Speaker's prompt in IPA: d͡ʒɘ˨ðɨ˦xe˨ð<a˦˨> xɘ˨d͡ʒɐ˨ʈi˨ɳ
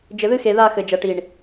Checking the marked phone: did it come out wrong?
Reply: no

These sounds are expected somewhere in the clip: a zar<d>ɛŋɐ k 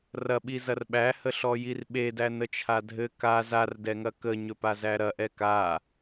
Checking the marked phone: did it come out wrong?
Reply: no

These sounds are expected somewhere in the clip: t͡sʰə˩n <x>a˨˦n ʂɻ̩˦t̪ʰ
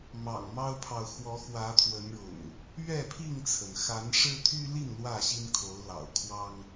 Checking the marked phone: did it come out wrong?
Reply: no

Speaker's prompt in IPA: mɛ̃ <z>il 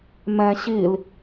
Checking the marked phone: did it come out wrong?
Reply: yes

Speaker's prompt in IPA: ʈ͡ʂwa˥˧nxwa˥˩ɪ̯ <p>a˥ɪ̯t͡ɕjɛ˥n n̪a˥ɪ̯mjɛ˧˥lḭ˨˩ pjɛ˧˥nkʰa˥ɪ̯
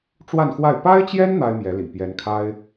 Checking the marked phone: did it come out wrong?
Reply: no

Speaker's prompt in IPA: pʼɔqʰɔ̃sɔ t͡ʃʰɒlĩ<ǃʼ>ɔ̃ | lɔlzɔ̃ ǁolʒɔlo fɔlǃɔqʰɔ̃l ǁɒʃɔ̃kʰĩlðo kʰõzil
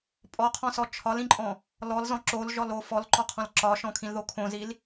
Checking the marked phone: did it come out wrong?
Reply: no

